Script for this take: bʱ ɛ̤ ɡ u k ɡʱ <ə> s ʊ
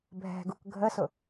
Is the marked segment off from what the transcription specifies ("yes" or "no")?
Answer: no